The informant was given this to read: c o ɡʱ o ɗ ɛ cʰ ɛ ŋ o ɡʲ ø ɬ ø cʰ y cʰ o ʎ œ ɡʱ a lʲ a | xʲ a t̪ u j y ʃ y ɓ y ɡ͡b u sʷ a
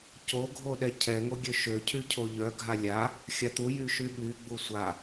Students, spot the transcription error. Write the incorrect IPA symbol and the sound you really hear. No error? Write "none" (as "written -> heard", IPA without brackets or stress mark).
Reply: ɬ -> ʃ